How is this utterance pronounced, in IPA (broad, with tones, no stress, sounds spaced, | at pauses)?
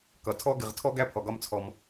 k ʌ˩ tʰ ɔ˥ ɡ ɪ˨ ʁ tʰ ɔ˦ ɡ æ˦ pʰ ɔ˩ ɡ ɒ˦ m t͡sʰ ɔ˨ m